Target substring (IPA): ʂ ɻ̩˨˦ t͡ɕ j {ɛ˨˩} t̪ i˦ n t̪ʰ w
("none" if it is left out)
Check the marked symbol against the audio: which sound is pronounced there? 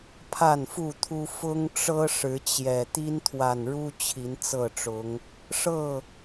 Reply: ɛ˨˩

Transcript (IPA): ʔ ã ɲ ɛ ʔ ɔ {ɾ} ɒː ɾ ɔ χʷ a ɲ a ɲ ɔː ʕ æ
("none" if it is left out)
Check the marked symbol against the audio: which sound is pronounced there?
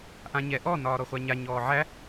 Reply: n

